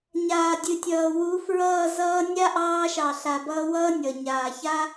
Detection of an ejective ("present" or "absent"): absent